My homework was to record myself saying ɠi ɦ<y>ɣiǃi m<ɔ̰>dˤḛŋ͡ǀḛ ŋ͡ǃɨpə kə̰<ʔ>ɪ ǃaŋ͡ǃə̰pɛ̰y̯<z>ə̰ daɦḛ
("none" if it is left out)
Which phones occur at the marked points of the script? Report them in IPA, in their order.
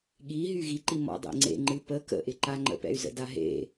y, ɔ̰, ʔ, z

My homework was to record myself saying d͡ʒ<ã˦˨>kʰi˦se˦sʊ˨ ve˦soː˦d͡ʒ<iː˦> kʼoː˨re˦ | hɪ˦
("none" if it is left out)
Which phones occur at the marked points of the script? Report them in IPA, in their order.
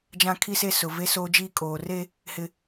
ã˦, iː˦

